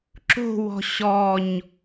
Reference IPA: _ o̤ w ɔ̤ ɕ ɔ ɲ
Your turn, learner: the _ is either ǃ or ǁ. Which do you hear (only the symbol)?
ǁ